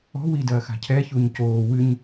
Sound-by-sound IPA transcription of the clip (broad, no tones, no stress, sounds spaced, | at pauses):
ɔ̤ w i d ɐː x a̤ cʰ ɛ ç u ɲ c oː w ɨ ɲ